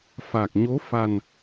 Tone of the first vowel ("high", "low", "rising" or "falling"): low